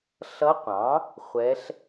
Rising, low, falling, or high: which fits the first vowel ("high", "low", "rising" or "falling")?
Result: rising